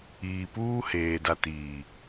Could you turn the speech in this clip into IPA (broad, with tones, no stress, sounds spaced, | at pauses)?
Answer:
iː˨ p uː˦ h eː˨ d a˨ t iː˨